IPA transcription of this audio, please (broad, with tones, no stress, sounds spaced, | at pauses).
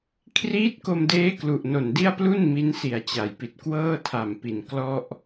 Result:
kʰ r iː˦˥ t̚ k o˧ m d eː˦˥ k l u˨˩ ʔ n o˨˩ n d i˥˩ a̯ p l u˥˩ n m i˦˥ n s i˨˩ a̯ t͡ɕ a˩˦ j p i˨˩ t̚ k w ɤː˥˩ tʰ a˨˩ m p i˨˩ n k l ɔ˥˩ ʔ